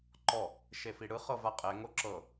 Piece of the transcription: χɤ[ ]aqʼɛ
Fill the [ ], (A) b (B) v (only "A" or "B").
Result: B